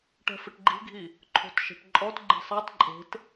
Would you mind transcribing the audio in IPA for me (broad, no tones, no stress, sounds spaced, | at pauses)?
ʈ ɛ̤ f ɪ ʈ ɡ͡ǃ i̤ ɡʱ i | ǃʰ o̤ t ʃ e̤ ʈ ǃʼ ɔ t ɡ͡ǃ i̤ sˤ a t ǃʼ e̤ t